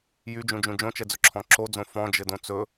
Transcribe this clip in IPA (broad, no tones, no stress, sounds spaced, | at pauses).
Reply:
j y d͡ʒ ũ d͡ʒ ũ d͡ʒ õ t͡ʃ ɛ d͡z ɵ ǁʰ ɔ̃ ǁ o d͡z õ f ɔ̃ d͡ʒ ɘ d õ t͡s ɵ